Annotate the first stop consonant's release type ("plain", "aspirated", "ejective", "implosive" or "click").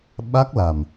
implosive